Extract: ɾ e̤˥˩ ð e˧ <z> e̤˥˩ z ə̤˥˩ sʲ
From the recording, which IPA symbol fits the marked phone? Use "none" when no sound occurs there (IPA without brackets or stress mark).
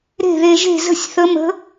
ʒ